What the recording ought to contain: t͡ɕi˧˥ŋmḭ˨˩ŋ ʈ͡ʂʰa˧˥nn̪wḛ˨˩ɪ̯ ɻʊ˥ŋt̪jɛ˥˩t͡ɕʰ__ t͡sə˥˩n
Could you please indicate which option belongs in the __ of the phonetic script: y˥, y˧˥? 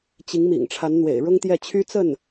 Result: y˥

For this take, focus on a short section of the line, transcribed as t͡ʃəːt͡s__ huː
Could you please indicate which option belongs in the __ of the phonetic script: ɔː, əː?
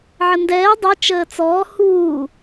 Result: ɔː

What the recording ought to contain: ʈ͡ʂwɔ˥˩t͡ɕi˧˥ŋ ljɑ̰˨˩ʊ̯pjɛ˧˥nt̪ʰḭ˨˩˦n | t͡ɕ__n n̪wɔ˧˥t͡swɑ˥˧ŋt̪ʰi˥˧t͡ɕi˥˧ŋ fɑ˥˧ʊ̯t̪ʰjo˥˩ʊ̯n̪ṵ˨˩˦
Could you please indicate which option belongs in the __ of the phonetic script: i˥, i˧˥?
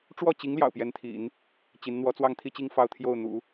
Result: i˧˥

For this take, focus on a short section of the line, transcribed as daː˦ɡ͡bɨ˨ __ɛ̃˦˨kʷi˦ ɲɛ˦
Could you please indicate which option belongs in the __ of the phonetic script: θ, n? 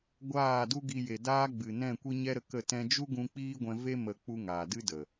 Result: n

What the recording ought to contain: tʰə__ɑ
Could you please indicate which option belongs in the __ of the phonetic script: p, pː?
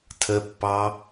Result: pː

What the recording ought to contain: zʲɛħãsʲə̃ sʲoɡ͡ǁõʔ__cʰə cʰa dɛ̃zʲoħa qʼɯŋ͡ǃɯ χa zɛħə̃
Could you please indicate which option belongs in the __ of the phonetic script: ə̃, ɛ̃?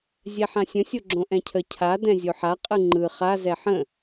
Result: ɛ̃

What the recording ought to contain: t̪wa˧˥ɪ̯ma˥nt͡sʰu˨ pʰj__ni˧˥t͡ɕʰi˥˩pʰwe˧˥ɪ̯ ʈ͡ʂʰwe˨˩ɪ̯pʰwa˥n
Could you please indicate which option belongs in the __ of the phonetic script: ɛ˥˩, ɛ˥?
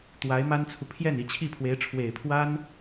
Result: ɛ˥˩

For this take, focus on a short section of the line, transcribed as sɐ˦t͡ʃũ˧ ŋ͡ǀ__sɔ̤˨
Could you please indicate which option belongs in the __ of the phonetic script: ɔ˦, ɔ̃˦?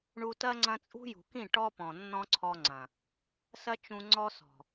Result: ɔ˦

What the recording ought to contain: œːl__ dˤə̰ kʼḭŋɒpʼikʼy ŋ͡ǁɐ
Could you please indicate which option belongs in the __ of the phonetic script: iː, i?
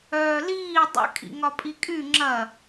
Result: iː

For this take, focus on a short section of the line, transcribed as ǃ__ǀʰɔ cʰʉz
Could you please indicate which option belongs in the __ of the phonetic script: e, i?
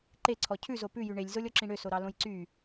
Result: e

